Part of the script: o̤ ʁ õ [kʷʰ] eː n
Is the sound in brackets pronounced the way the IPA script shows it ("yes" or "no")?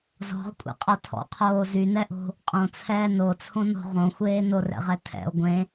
no